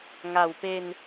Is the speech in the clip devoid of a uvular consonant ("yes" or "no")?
yes